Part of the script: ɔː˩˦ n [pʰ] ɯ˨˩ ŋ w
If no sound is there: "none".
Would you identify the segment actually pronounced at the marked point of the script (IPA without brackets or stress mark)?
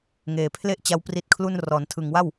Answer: tʰ